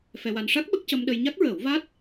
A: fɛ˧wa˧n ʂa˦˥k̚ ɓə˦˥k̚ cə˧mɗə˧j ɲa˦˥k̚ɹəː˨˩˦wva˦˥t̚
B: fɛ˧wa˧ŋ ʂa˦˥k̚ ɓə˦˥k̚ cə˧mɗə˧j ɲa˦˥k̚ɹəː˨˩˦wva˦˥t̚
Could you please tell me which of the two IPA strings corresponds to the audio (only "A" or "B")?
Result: A